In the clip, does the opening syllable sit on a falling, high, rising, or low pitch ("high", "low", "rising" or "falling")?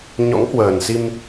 rising